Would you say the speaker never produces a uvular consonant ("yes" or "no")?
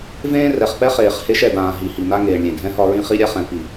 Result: no